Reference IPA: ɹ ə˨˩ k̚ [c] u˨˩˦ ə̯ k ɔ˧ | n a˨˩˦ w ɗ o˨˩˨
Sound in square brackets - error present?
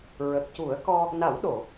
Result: no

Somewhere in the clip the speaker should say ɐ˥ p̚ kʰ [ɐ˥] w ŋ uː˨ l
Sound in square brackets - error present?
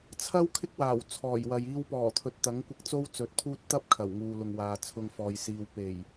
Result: yes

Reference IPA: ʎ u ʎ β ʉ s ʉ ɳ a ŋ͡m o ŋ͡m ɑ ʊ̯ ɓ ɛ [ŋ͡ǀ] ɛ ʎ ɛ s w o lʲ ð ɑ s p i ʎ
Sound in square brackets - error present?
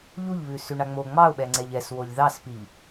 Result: no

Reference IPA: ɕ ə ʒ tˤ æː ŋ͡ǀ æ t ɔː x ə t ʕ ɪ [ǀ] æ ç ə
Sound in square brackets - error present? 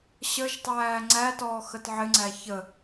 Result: yes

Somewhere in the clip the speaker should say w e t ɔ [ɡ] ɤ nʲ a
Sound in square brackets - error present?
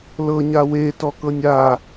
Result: yes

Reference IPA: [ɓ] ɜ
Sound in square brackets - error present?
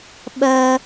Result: no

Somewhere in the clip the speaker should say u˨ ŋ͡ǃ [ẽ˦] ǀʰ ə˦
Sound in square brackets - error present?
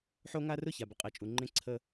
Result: no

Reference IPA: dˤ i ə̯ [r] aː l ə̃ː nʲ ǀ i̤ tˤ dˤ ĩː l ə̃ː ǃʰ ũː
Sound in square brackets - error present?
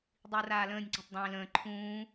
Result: no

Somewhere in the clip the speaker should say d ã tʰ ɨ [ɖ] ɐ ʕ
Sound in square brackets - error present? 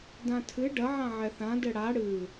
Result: no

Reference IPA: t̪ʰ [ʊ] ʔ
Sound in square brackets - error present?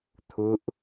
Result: no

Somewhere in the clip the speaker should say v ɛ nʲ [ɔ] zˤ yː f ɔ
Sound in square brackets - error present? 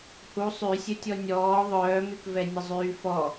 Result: yes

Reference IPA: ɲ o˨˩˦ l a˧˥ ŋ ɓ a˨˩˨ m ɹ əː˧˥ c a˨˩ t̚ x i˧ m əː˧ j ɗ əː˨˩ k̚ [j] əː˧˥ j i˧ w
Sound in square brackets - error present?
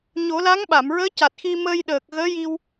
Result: yes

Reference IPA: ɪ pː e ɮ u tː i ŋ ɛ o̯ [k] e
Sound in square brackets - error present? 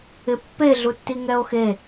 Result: yes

